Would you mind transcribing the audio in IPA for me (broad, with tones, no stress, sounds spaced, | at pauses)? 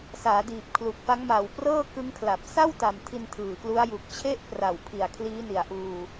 s aː˩˦ d iː˨˩ p̚ kʰ l u˨˩ k̚ f a˦˥ ŋ m a˨˩ w p r ɤː˥˩ k ɯ˦˥ ŋ kʰ l a˨˩ p̚ s a˥˩ w t a˨˩ m tʰ i˧ n tʰ ɯː˨˩ k l u˦˥ a̯ j u˨˩ k̚ t͡ɕʰ e˥˩ ʔ p r a˨˩ w pʰ i˨˩ a̯ kʰ l iː˦˥ n i˨˩ a̯ ʔ uː˧